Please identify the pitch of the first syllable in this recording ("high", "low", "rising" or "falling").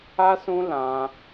high